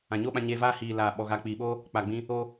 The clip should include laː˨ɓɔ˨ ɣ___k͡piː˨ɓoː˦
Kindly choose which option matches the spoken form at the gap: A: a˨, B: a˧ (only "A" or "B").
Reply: A